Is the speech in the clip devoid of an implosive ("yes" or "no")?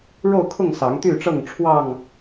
yes